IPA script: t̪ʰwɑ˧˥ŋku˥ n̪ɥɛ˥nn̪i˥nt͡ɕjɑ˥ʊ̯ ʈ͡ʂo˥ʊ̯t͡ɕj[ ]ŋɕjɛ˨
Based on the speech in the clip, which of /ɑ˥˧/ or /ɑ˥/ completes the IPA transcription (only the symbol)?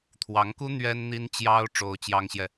ɑ˥